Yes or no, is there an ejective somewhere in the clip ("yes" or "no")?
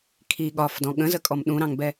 yes